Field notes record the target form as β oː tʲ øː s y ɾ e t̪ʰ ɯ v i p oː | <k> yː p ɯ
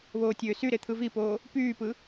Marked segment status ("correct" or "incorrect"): incorrect